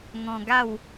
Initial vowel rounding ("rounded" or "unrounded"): rounded